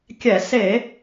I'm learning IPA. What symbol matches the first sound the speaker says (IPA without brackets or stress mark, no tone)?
kʲ